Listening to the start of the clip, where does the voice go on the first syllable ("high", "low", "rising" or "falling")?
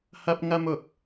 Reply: high